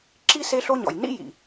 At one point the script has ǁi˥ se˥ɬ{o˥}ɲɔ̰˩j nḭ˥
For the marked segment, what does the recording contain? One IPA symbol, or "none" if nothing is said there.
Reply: o˥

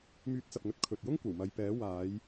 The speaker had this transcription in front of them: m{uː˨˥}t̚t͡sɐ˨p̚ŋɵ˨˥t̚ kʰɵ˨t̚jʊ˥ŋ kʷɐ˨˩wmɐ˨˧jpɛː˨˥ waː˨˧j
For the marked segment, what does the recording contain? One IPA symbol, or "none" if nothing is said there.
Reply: yː˨˥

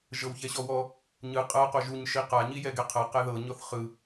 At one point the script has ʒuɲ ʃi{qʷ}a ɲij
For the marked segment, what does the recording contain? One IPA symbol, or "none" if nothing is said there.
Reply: q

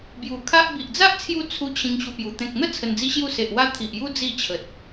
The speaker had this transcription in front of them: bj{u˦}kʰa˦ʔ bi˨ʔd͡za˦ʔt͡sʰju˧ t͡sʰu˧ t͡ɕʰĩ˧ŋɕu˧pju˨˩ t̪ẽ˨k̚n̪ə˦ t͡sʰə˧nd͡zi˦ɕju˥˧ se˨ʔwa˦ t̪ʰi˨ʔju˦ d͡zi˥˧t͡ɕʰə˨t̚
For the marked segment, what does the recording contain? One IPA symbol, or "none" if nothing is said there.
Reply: u˨˩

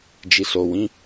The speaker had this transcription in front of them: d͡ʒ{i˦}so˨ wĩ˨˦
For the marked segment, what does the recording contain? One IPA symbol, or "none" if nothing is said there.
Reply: i˨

